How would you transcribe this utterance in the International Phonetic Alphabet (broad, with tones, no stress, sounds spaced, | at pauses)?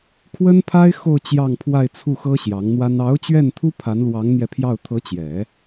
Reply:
kʰ w ə˥ n pʰ a˥ ɪ̯ x o˥˧ ʊ̯ t͡ɕ j ɑ˥˧ ŋ pʰ w a˥˧ ɪ̯ t͡sʰ u˥˩ x ɤ˥ ɕ j ɑ˧˥ ŋ n̪ w a˥ n ɑ˧˥ ʊ̯ t͡ɕ ɥ ɛ˥˩ n t̪ʰ u˥ pʰ a˧˥ n l w ɑ˧˥ ŋ n̪ j ɛ˧ pʰ j ɑ˥˩ ʊ̯ t̪ʰ ɤ˧˥ t͡ɕ j ɛ˨˩˦